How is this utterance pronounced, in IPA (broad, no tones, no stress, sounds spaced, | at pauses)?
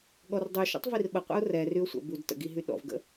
ɠ ɔ r dˤ y ʃ ɔ̰ tˤ v i r ɓ ə qʷ ə̰ ʊ̯ r ɛ r y ʊ̯ sʷ ə̰ b u d t ə̰ ɡ i ɦ y ɗ ɔ̰ v ɡ ə̰